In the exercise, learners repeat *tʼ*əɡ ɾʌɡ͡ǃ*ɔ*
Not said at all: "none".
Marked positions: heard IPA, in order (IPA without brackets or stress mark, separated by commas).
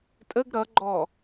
tʼ, ɔ